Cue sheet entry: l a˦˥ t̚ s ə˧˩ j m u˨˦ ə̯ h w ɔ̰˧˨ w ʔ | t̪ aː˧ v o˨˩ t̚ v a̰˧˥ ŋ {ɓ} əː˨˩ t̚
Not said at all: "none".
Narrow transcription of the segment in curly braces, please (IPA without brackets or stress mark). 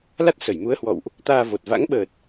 ɓ